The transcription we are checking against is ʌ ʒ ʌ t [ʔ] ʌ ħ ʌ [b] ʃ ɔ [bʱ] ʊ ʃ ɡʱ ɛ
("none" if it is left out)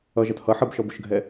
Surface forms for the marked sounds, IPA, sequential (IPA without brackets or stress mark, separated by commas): h, b, b